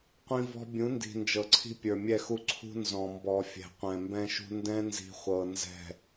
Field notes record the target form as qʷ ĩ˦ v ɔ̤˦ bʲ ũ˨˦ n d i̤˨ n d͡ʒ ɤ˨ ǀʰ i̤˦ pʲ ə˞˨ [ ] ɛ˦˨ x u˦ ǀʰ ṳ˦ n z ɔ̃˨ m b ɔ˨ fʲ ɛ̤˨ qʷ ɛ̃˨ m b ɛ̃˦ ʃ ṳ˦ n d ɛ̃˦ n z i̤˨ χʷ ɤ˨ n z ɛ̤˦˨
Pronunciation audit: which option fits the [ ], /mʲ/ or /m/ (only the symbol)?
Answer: mʲ